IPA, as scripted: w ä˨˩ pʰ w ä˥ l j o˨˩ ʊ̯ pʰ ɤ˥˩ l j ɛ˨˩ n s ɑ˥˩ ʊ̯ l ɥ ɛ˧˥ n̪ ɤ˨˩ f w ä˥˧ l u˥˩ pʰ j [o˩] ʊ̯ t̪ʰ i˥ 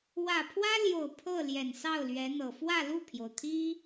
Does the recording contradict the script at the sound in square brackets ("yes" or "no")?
no